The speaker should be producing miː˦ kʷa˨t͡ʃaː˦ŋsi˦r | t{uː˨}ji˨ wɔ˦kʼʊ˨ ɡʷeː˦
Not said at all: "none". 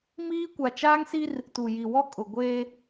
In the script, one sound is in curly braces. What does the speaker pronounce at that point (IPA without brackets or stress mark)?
u˨